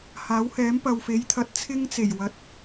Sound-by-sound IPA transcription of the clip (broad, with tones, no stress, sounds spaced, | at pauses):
h aː˨˥ w h ɛː˨˥ m p ɐ˨ w f e˨˥ j t̪ʰ ɐ˨˥ t̚ t͡sʰ ɪ˥ ŋ t͡s e˨˩ j w ɐ˨˥ t̚